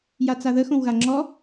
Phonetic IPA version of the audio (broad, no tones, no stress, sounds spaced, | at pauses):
j a t͡s a ð ə x õ w ɣ a ŋ͡ǁ ɔ